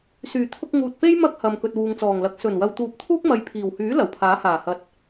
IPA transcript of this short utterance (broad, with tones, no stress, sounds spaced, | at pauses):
s yː˨˩ t̪ʰ ʊ˧ k̚ ŋ uː˨ t̚ p e˥ j m ɐ˥ k̚ h ɐ˨ m k ɵ˨ t̚ w uː˨ ŋ t͡s ɔː˨˩ ŋ l ɐ˨˥ k̚ s ɵ˨˩ n w ɐ˨ w t̪ uː˨˥ p̚ t̪ʰ uː˥ k̚ m ɐ˨˧ j pʰ iː˨˩ w h yː˨˥ l ɐ˨˩ w pʰ aː˨˥ h aː˨˩ h ɐ˨˥ t̚